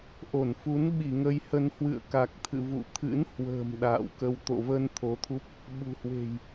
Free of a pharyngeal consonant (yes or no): yes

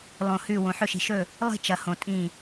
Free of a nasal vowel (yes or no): no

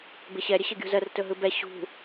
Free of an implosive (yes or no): yes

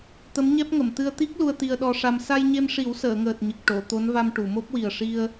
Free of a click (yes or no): yes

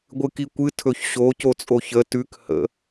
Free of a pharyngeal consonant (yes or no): yes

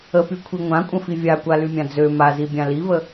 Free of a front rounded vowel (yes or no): no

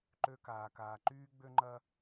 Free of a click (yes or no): no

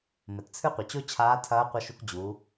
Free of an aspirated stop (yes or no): no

